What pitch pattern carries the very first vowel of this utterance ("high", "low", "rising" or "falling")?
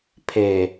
low